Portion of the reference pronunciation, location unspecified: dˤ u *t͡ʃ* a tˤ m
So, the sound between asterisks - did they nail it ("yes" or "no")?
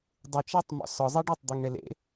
yes